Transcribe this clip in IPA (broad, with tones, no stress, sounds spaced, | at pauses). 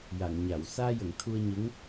j a˨˩˨ ŋ ɲ a˨˩˨ w s aː˧ j ə˨˩˨ ŋ t̪ʰ u˧ ə̯ ɲ ə˧˥ ŋ